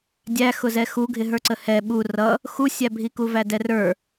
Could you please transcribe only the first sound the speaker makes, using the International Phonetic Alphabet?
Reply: dʲ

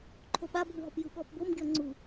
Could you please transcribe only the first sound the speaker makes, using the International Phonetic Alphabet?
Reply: ǃʰ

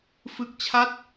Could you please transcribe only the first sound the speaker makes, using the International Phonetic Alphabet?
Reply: f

